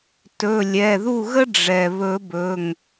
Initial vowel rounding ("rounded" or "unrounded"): rounded